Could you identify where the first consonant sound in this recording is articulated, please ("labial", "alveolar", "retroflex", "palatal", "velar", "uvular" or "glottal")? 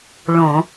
retroflex